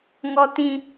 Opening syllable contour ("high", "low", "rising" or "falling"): high